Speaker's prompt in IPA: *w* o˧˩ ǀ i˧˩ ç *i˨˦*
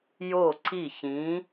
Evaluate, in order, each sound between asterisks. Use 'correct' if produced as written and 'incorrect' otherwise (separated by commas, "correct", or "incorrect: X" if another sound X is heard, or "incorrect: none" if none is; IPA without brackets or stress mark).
incorrect: j, incorrect: ĩ˨˦